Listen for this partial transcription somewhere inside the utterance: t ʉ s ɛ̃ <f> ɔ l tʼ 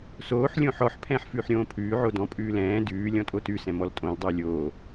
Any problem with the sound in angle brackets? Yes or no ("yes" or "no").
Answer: yes